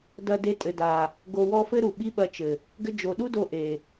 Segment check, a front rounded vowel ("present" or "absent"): absent